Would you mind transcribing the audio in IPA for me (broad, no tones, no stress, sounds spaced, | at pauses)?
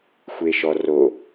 xʷ e ʃ ɔ r o